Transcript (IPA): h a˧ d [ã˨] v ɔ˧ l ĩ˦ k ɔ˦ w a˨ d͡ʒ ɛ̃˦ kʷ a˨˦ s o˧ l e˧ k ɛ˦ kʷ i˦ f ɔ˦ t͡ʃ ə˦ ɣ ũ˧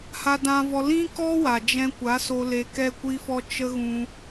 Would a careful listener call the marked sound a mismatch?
yes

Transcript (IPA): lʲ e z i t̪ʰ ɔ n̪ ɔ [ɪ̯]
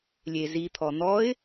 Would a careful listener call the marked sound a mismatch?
no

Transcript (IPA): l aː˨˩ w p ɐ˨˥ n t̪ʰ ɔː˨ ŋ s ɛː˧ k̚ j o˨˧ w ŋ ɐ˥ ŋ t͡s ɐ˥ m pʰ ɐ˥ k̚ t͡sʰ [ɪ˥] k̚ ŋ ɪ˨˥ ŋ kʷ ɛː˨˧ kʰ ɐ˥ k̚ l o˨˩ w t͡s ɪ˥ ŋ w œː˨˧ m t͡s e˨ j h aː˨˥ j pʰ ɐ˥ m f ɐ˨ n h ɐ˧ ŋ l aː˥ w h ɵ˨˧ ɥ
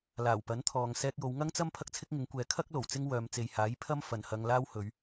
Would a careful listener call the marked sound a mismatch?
no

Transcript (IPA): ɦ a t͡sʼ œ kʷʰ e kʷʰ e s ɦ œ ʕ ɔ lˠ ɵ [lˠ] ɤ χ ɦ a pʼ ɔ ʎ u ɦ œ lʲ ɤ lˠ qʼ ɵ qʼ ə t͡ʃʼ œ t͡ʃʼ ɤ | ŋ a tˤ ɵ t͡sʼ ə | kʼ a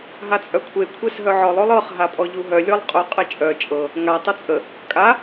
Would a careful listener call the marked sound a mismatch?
no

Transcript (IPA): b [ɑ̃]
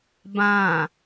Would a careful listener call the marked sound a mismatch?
yes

